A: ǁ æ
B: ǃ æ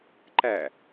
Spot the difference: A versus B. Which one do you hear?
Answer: B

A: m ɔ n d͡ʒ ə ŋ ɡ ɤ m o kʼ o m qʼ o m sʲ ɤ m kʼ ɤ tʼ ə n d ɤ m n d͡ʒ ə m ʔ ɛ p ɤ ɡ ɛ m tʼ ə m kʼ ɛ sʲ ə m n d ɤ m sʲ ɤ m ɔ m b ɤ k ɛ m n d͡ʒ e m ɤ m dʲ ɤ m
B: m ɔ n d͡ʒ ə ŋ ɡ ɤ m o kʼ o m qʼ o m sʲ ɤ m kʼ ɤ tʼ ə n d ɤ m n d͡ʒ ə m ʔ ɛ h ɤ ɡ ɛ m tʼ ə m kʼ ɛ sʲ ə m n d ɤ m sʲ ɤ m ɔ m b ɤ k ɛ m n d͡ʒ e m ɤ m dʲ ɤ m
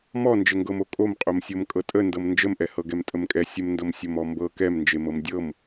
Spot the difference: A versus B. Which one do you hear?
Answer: B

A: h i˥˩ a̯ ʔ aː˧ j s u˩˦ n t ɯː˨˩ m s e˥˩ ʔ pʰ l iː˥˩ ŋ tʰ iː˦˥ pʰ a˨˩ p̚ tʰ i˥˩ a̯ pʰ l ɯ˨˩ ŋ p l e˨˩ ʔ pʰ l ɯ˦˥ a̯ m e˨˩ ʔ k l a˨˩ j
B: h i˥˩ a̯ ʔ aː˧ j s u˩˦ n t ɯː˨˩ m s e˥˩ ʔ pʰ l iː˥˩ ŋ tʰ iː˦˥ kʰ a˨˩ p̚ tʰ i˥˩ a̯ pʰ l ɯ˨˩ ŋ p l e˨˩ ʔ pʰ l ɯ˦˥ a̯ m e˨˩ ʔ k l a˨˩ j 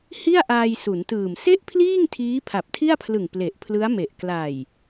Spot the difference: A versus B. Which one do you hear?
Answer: A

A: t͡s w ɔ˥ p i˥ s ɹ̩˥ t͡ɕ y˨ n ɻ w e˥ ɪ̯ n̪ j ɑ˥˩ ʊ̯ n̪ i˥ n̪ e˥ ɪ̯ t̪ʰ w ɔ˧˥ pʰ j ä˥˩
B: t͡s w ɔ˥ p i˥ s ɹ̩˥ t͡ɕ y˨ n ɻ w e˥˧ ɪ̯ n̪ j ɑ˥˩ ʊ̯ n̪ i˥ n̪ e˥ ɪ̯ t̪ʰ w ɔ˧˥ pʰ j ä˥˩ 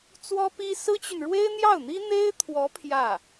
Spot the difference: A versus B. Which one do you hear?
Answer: A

